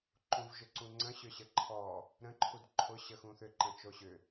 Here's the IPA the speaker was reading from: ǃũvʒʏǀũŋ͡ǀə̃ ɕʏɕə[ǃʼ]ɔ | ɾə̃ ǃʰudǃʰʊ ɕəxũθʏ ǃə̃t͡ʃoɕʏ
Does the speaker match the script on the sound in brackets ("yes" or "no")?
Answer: no